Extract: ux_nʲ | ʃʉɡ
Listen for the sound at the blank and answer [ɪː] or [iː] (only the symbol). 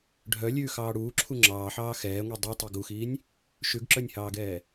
iː